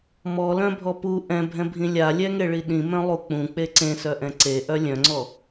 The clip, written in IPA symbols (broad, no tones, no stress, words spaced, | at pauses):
mɔlœ̃bʱɔ pu ʔɛ̃bʱɛ̃bʱĩ lʲalʲɛŋeɭi ɗĩmœ̃lˠu k͡pũk͡pe ǀẽsœʔɛ̃ ǀeʔœ lʲœ̃ŋ͡ǀɔ